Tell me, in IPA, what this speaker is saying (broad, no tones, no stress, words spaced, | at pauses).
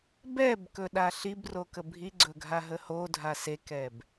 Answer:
bɛbkɵ ɗaɬibrokə bʱiɡ͡ǀɵɡʱaɦə hodʱa sekɛb